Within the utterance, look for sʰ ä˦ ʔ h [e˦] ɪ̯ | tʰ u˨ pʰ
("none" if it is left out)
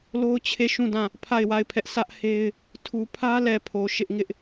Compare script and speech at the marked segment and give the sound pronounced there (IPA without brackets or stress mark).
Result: e˦